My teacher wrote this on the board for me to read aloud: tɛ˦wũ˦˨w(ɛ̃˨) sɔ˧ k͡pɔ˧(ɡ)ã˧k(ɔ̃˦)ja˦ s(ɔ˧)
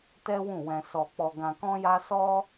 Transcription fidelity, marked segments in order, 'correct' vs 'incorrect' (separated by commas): incorrect, correct, correct, incorrect